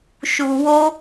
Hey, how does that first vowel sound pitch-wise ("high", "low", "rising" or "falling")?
low